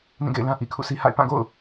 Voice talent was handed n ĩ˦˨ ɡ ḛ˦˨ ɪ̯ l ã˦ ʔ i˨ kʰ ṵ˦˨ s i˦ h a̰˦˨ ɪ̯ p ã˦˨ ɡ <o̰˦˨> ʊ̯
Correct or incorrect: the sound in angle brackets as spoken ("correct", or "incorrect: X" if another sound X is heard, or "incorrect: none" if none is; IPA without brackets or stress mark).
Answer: correct